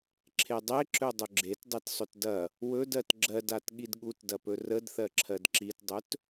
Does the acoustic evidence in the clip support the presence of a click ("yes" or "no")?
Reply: yes